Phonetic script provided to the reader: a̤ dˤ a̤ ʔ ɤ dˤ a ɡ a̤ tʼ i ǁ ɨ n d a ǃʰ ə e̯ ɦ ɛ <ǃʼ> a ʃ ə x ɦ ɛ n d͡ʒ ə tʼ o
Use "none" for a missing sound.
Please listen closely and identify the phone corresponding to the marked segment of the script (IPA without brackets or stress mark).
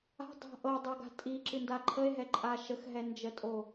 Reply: ǃʼ